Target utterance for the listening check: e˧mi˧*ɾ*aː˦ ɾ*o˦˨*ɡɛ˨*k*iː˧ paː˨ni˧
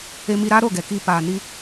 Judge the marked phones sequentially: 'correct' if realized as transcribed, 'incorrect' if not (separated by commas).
correct, correct, correct